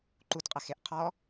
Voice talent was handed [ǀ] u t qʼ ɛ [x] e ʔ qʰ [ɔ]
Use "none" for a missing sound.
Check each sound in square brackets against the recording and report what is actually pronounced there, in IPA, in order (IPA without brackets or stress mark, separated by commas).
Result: ǃ, x, ɔ